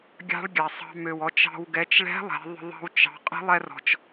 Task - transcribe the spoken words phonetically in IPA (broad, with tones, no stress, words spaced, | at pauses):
ɡʲɑ̤˧˥ɭɡʲa˩sˤɑ̤˧ mø˩wɔ˩˧t͡ʃɑ̤˧w ɡɛ˩˧t͡ʃɭɛ̤˧˥ lˠɛ̤˩˧ ðˤə̤˧ ðˤɑ̤˧wt͡ʃɑ̤˩˧ qʼə̤˧˥lˠɛ˧rɔ̤˩t͡ʃ